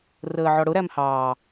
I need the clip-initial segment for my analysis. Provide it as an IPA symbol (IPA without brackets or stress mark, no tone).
r